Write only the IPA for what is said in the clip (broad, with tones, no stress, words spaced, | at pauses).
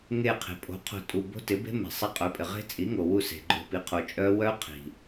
ŋe˧˩qʰe̤˩ pʼo̤˩˥qʰo̤˧˩tʼu˩˧˩ bo̤˦˥tɪ˩˥be̤˦˥me̤˩ sˤi˧˩qʼœ˩˥pʼɪ˩ ʁe̤˦˥t͡sʼi˩˥ŋo˩wu˧˩ se̤˩ɡ͡ǃo̤˧˩ pi˩˥qʰo˩t͡ʃʼœ˦˥ wœ˦˥qʰi̤˩